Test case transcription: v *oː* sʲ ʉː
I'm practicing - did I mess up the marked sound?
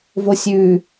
yes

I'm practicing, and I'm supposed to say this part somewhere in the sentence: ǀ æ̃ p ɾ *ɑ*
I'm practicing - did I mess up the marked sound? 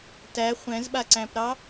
no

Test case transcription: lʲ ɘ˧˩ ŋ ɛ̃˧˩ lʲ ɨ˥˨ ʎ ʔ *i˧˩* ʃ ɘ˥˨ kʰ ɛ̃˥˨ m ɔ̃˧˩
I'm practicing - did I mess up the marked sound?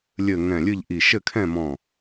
no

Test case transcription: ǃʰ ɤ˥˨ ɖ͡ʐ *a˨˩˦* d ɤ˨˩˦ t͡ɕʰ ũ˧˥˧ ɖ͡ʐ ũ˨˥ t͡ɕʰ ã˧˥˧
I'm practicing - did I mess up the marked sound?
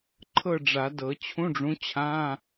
no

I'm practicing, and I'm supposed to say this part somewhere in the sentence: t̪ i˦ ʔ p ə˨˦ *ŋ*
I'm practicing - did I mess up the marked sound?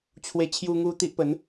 yes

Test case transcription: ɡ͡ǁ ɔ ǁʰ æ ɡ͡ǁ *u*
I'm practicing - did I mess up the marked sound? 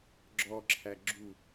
no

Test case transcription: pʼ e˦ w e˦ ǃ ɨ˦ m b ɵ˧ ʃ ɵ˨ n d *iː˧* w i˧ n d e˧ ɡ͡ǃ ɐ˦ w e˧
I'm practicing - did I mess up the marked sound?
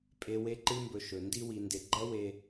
yes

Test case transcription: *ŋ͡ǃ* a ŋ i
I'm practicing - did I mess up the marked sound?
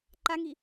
yes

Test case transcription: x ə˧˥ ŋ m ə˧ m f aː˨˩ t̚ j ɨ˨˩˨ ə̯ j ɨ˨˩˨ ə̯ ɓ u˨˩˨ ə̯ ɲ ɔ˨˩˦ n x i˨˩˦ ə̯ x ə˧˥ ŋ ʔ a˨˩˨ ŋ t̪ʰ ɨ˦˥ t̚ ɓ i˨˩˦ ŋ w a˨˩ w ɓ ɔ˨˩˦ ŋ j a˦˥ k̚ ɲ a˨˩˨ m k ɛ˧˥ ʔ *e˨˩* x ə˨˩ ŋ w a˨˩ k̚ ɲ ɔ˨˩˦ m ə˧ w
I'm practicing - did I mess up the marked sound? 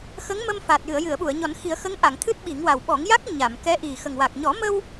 yes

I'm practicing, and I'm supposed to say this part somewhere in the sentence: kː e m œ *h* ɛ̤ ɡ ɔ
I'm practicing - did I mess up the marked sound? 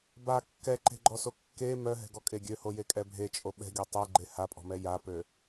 yes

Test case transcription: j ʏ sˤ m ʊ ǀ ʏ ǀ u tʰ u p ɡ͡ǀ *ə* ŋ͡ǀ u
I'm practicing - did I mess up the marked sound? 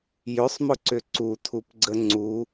no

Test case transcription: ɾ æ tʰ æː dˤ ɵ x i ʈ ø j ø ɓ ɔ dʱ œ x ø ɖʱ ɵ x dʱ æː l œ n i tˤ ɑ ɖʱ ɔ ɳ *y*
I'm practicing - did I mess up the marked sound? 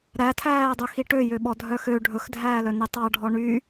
no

